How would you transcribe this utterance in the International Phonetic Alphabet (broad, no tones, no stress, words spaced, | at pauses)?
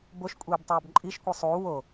boʃkʷʼeːbtˤoːb ǃʼiʃkʷi sˤuː wo